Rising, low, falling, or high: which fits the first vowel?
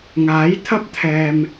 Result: rising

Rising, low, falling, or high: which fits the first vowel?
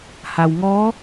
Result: low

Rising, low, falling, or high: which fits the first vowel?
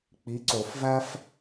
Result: rising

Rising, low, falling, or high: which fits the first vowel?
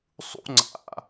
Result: high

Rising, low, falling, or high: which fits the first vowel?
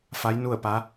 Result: rising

